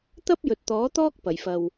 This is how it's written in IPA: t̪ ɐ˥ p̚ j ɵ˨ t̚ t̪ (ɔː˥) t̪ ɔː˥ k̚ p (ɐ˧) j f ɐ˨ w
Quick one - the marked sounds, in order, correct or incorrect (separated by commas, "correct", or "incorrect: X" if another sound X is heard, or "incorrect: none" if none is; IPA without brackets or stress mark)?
incorrect: ɔː˨˥, incorrect: ɐ˨˩